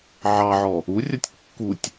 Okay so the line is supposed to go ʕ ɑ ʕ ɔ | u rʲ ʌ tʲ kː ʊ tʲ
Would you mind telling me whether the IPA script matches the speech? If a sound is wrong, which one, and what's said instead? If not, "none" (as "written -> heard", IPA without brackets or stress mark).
ʊ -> u